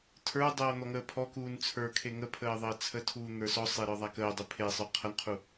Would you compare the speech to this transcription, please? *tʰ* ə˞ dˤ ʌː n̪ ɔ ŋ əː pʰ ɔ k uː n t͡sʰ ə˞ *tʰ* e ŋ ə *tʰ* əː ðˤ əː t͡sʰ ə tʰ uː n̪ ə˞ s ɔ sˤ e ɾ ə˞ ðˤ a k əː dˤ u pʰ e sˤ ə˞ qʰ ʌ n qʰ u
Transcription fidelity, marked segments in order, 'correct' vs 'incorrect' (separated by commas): correct, incorrect, incorrect